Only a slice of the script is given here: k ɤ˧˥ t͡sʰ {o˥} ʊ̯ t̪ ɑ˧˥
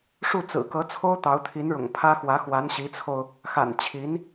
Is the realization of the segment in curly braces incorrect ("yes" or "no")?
no